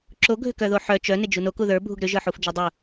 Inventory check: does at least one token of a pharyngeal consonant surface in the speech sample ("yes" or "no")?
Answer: yes